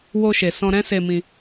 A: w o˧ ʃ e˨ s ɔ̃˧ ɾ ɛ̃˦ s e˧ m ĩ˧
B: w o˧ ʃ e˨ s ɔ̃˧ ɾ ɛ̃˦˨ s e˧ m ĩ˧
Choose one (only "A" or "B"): A